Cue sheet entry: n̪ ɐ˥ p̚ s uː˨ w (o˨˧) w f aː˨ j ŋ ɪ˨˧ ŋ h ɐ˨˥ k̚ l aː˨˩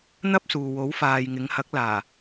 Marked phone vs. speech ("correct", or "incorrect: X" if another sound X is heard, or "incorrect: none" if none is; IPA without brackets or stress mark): incorrect: o˨˥